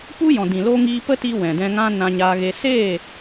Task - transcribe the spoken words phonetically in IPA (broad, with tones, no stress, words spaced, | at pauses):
pu˦ jɔ̃˨dĩ˨loː˧ ŋiː˧pə˦ti˧ wɛ̃˨dɛ̃˧ ŋã˦ nã˧ɲaː˧ɣe˧ se˦˨